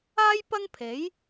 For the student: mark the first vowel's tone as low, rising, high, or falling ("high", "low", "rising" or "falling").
high